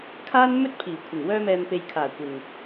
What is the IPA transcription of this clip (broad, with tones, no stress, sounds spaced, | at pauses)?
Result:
kʰ aː˥ n m ɵ˥ t̚ pʰ iː˨˩ kʷʰ ɪ˨˩ ŋ w œː˧ m ɛː˨ m p e˨ j kʰ aː˨˩ kʷ ɪ˨ ŋ